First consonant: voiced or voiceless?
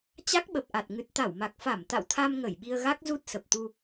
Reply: voiceless